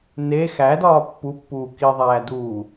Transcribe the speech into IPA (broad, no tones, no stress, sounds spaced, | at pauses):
n e x æ d ɒː pː u pː uː k i ðˤ æː d uː